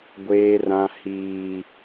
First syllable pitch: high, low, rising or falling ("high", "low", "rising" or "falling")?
high